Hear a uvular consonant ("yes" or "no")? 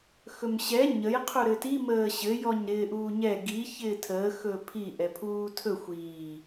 yes